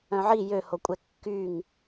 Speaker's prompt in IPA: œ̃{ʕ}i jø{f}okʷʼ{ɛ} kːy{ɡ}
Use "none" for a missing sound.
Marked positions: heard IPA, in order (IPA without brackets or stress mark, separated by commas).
ʕ, h, ɛ, ŋ